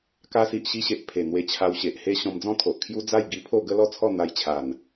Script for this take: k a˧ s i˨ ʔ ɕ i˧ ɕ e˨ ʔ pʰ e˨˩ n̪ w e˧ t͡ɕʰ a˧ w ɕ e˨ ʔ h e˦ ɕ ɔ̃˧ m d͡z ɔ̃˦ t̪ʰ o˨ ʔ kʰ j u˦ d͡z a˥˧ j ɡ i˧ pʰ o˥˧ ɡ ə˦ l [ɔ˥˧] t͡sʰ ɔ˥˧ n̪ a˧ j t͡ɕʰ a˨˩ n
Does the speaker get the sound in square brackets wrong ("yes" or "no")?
no